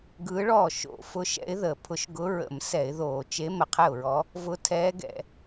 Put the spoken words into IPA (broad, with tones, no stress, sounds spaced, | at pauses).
ɡ ɯː˧˥ ɭ ɔː˥˩ ʃ o̰˧˩˧ f ʊ˧˥ ʃ ɛ̰˧˥ ɪ̯ ð əː˧˩˧ pʰ ʊ˧˥ ʃ ɡ ʊ˧˥ ɹ ə̰˧˩˧ m s ɛ˧˩˧ ɪ̯ ð oː˧˩˧ t͡ʃ e˧˥ m ə˧˩˧ qʰ ɛ˥˩ ʊ̯ ɹ ɔ˧˥ | v ʊ˧˥ tʰ ɛː˧˥ ɡ ɛ̰˧˩˧